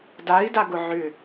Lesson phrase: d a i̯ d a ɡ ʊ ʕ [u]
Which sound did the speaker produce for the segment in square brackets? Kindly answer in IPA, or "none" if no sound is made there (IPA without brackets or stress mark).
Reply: ʏ